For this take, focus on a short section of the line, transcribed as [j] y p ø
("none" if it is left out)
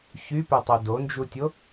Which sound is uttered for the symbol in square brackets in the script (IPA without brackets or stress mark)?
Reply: ç